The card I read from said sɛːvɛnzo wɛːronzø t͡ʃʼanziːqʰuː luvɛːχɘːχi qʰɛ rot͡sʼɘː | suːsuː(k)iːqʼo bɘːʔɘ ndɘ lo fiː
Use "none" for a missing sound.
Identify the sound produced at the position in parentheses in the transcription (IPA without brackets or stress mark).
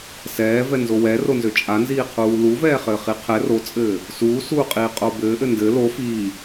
qʼ